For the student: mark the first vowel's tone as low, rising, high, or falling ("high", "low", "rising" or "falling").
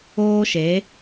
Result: high